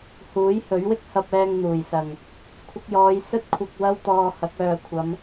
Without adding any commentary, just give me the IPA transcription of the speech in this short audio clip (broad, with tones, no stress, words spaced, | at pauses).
huː˨˥jhɵ˨˥ɥwɪ˥k̚ hɐ˧p̚ ɛː˧ŋn̪uː˨˩jsɐ˨˩ŋ | kʷʰɪ˧k̚jɔː˨˧j sɵ˥t̚kʷʰɐ˧k̚ wɐ˥wt̪ɔː˧hɐ˨˥k̚ œː˨kʷʰɐ˨˧m